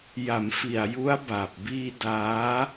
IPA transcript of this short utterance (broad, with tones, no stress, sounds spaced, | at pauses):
j a˩˦ m f i˨˩ a̯ j u˦˥ a̯ b a˨˩ p̚ b iː˧ d aː˦˥